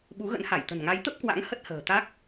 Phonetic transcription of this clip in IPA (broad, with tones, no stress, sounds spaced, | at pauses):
ɓ u˨˦ ɣ ə̰˧˥ n h a˧˩ j t̪ ə̤˨˩ n ŋ a˨˦ j t̪ ə˦˥ p̚ k w a̰˧˥ ŋ h ə˦˥ t̚ h ə̤ː˨˩ t̪ a˦˥ k̚